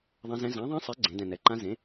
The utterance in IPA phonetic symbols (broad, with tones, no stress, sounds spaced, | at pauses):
ðˤ ɛ̃˦˥ z ɛ̃˦˥ z ã˨˥ ðˤ ẽ˦˥ sˤ e˨˥ ɡ͡ǀ ẽ˨˥ d ɛ̃˧ n ɛ˨˥ ǃ ã˦˥ z ẽ˨˥